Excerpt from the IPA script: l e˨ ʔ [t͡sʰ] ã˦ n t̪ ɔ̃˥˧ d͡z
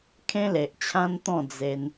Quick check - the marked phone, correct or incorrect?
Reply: incorrect